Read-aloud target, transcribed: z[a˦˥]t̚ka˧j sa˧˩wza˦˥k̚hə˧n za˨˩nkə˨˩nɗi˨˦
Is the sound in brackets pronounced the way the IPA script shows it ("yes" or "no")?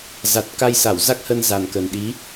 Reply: no